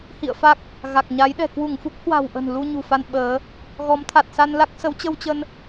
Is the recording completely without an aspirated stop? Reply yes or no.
no